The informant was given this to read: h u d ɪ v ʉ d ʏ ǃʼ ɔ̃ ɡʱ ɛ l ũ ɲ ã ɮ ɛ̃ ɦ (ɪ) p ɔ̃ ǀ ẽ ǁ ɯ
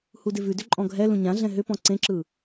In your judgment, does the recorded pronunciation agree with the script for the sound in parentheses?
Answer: no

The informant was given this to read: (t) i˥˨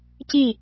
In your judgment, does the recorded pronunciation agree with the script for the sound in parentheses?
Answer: no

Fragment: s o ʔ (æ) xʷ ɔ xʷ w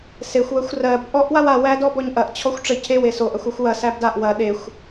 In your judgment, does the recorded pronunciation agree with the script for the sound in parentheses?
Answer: no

